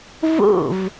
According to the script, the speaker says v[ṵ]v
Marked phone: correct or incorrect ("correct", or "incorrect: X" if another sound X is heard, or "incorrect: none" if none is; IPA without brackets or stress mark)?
correct